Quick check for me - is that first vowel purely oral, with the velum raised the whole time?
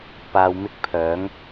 yes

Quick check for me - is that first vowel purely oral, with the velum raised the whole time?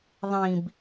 no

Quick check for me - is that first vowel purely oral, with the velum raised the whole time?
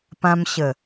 no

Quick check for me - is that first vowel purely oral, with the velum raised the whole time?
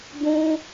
no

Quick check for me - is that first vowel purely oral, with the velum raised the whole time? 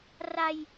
yes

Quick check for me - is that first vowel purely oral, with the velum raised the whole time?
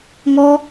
yes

